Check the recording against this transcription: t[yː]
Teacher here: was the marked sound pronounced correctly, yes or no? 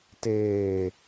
no